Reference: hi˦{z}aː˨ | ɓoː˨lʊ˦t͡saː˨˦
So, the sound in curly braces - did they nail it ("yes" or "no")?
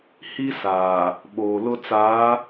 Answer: no